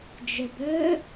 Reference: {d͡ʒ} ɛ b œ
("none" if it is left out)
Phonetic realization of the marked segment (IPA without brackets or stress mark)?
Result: d͡ʒ